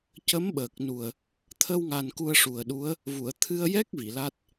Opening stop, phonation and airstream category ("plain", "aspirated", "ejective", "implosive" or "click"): plain